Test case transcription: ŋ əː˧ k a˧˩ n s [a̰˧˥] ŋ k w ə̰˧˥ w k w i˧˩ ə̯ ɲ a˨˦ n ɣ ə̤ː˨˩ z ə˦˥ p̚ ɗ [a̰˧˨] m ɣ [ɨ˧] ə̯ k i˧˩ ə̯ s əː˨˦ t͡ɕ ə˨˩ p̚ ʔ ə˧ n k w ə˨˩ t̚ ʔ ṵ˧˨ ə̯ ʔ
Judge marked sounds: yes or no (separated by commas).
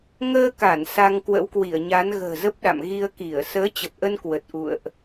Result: no, yes, no